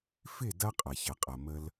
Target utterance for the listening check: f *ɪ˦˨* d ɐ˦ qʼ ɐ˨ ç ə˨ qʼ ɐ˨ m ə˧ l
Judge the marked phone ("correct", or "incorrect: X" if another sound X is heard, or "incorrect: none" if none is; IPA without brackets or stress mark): correct